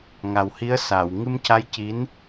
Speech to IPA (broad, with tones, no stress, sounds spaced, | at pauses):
ŋ a˨˩ w h i˧˥ ə̯ s aː˨˩˨ w ŋ ɨ˧ m c a˧˥ j c i˧˥ n